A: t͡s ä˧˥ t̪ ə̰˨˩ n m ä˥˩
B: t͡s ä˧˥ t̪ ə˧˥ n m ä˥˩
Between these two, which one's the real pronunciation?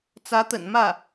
A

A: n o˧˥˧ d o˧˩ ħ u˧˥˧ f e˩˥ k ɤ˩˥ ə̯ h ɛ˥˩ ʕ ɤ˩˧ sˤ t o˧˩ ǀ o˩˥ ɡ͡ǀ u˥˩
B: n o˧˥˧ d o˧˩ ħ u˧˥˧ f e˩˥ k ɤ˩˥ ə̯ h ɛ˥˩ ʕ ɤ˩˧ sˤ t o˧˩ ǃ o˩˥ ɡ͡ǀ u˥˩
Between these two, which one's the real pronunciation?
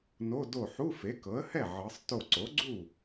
A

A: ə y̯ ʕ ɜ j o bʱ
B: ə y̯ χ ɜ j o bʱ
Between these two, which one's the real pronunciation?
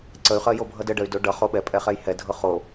B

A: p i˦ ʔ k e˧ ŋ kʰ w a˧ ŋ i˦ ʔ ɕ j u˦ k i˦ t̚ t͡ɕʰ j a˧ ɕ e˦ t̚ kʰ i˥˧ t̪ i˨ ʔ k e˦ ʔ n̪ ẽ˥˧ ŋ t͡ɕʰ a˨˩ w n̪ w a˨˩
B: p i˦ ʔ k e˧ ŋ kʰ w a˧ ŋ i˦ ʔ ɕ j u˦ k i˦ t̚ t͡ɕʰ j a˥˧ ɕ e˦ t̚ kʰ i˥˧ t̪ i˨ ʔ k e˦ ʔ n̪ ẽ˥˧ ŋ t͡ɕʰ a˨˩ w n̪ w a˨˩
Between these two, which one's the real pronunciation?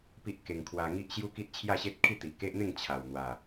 B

